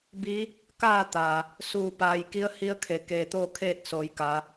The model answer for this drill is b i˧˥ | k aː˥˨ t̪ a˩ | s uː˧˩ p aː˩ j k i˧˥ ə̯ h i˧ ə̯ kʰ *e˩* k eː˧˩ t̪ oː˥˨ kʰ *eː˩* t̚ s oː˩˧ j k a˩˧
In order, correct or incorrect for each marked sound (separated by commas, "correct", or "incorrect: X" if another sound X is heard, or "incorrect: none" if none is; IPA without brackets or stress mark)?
correct, incorrect: eː˥˨